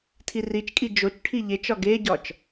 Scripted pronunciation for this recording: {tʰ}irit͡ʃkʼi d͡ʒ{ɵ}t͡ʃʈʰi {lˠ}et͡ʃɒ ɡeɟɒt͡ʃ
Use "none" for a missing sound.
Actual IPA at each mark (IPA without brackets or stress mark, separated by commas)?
tʰ, o, ʎ